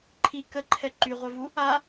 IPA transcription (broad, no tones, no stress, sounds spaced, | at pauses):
ǃʰ i k ə ǃʰ ɛ ǃ y ʁʷ œ v u | a